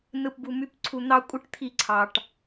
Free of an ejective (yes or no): no